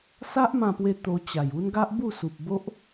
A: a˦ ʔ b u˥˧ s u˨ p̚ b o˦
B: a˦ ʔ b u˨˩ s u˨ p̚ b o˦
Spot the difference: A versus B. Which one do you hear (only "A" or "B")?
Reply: A